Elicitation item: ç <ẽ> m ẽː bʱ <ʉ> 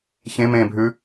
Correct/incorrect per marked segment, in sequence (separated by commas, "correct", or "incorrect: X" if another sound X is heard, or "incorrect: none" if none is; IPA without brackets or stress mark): correct, correct